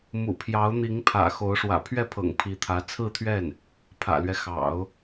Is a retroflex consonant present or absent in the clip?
present